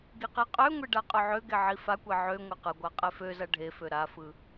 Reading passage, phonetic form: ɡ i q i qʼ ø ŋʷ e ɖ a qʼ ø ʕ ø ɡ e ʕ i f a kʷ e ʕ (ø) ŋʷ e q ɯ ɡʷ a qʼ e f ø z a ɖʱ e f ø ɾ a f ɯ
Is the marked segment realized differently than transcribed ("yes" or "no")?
no